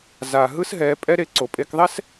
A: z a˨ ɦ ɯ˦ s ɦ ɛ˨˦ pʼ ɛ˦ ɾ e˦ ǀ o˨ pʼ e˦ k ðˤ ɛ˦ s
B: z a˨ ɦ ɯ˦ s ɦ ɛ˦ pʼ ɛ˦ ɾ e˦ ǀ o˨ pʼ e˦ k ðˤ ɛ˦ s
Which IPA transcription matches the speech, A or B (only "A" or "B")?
A